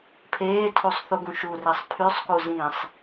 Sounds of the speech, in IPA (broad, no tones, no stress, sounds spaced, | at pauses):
pʰ eː tʰ u sˤ θ u ɡ ũ ʃ u r e sˤ pʰ y sˤ k u z ĩː sˤ